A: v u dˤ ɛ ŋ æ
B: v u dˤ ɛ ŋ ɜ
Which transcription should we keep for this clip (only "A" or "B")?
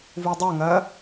B